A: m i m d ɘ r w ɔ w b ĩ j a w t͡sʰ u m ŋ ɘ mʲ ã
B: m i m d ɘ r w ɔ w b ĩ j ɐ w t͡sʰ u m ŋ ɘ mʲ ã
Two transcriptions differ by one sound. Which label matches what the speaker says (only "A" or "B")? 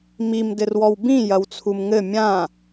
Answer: B